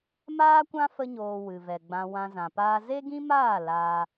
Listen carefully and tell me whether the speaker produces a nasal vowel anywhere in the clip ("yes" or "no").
yes